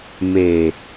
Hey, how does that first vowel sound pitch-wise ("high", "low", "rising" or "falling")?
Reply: low